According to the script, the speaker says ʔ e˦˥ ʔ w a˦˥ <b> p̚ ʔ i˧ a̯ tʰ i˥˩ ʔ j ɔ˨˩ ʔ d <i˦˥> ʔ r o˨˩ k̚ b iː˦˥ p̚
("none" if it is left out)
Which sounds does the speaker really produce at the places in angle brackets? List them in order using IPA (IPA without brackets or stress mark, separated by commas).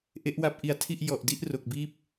none, i˥˩